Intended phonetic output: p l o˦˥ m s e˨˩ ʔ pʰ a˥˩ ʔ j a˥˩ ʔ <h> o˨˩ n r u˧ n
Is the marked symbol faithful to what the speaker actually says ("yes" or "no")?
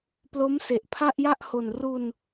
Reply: yes